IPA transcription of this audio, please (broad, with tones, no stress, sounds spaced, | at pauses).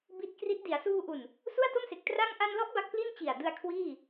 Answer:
b i˦˥ t̚ k r i˦˥ t̚ d i˩˦ a̯ s uː˧ ʔ u˨˩ n | s u˥˩ a̯ t o˥˩ m s e˨˩ k̚ t r a˥˩ ŋ ʔ a˧ n l ɔ˦˥ ʔ b a˦˥ k̚ p l i˥˩ n t͡ɕ i˨˩ a̯ d ɯ˧ a̯ kʰ w iː˥˩